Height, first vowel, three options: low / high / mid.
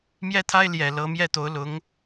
mid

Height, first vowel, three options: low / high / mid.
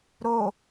mid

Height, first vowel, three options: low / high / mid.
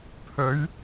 mid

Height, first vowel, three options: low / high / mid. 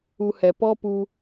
high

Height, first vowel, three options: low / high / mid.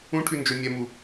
high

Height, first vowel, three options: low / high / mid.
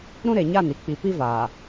high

